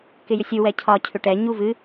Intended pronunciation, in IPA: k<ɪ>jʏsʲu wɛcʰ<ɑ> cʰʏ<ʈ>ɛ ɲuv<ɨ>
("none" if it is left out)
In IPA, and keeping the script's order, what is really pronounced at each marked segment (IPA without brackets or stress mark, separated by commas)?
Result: ɪ, ɒ, ʈ, ɨ